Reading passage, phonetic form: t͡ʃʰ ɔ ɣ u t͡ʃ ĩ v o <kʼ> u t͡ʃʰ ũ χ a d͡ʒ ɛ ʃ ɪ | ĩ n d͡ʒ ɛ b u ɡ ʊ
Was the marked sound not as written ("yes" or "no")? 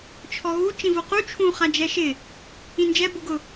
yes